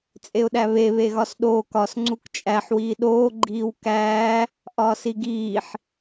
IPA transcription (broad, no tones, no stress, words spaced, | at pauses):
t͡sʼeʊ̯ɗæβe βeɣɒsɗoːk ɒs ŋ͡ǀukt͡ʃʼæħ wiːɗoː ɡ͡ǃiːwkæː | ʔɒːsiɡiːħ